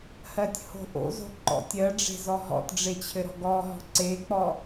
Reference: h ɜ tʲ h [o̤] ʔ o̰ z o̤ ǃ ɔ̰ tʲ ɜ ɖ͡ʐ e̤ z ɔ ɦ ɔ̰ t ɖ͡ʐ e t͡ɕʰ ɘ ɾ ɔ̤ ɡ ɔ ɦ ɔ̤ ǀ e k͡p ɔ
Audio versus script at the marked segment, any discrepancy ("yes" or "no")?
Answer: no